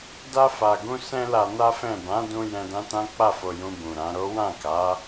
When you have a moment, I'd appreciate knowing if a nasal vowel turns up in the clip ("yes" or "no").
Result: yes